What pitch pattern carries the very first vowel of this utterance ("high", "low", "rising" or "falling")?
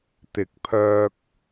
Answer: rising